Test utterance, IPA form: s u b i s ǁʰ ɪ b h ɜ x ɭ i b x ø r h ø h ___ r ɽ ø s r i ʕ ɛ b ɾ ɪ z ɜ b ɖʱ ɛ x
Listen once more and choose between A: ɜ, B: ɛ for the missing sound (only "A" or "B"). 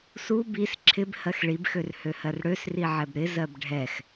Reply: A